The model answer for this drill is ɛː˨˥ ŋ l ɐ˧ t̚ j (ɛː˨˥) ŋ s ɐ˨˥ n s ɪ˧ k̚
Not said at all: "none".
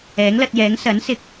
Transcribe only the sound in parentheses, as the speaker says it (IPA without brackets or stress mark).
ɛː˨˥